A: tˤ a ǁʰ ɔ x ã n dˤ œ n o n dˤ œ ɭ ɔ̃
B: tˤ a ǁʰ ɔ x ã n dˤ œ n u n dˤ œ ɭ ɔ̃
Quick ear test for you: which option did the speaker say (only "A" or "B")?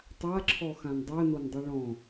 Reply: A